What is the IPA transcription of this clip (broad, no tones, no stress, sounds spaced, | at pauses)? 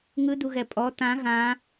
ŋ ɯ d̪ u ɣ ɛ pʼ ɔ t̪ ã ɣ ã